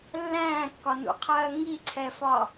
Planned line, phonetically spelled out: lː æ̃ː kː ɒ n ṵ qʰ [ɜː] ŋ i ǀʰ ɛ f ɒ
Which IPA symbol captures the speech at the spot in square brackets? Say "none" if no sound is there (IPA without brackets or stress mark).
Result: ɜː